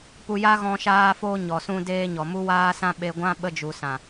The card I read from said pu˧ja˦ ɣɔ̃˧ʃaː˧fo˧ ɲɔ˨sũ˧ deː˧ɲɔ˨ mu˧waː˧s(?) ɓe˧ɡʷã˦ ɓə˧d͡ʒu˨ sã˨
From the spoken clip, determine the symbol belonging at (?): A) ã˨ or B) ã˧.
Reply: B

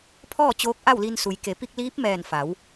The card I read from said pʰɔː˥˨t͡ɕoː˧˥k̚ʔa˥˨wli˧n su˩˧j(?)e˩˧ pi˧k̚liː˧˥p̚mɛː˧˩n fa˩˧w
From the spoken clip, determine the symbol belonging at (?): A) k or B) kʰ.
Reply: A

